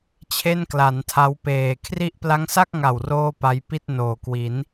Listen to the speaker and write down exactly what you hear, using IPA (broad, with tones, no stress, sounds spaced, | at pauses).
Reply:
t͡ɕʰ e˥˩ n k l a˩˦ n tʰ a˦˥ w p eː˨˩ kʰ r i˦˥ ʔ p l a˦˥ ŋ s a˥˩ k̚ ŋ a˨˩ w r oː˥˩ p a˦˥ j p i˥˩ t̚ n oː˨˩ k w i˩˦ n